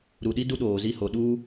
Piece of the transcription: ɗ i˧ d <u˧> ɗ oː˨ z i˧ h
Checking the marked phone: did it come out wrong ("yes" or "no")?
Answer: no